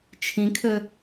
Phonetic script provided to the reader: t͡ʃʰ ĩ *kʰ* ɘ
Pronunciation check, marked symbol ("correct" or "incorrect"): correct